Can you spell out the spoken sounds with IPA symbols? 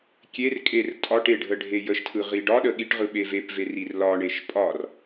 kʲ e r kʼ e r tʼ ɒ ʈ e ɖʱ ə ɖʱ e j ə ʃ tʰ ɯ ʁ i ɖ ɒ ɗ ə ɠ i ʈ ʁ ɯ ɓ e v e p v e r i r l ɒ ɳ e ʃ pʼ ɒ r

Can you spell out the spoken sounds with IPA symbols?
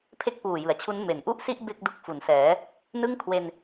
pʰ e˥˩ k̚ p uː˨˩ j ɯ˩˦ a̯ t͡ɕʰ u˦˥ n m e˩˦ n ʔ u˥˩ ʔ s i˥˩ ʔ b e˥˩ k̚ d u˦˥ k̚ f u˩˦ n s ɛː˩˦ | n ɯ˥˩ ŋ kʰ w e˧ n

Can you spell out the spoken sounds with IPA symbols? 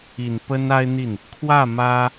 i˨˩ n p ə˥ n a˥ ɪ̯ n̪ i˥˩ n | kʰ w ä˥˩ m ä˥

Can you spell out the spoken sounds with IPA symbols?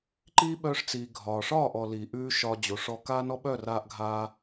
ǃ iː˦ ɓ œː˧ ʂ t͡s iː˨ ɡʱ ɒː˨ ʂ ɒː˦˨ ʔ ɔ˨ l iː˨ ʔ ʉː˦ ʃ ɒ˧ d͡ʑ o˨ ʂ ɔ˧ k aː˦ n ɔ˦ ɓ œ˦˨ r aː˦ ʔ ɡʱ aː˦

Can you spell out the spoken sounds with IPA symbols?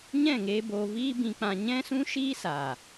ɲ ɛ̃˦˨ ŋ eː˧ b oː˧ v iː˦ b ĩ˧ k͡p ã˧ ɲ ɛ̃˦ s ũ˦ ʃ iː˦ s aː˨

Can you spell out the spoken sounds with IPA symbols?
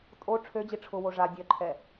tʼ o ʈ͡ʂʰ ø d͡ʑ i ʈ͡ʂʰ ʊ w o ʐ a dʲ œ ǃʰ ɛ

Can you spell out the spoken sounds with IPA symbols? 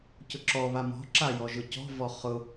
c ʊ ǁ ɔ β a m ɔ̤ ǁ a j ɔ ʒ ʊ c ɔ̤ v ɔ χ ʊ

